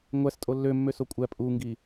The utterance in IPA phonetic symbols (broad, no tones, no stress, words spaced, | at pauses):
ŋʷæs tʼolːømːø sokʷʼæ pʼuŋɡi